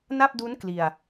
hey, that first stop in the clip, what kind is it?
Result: plain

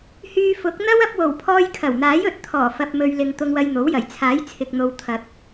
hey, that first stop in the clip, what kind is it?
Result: plain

